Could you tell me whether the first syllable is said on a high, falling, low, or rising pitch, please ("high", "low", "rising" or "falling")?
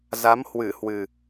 rising